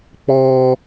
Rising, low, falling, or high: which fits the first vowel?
high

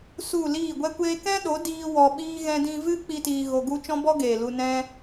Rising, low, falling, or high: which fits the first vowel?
falling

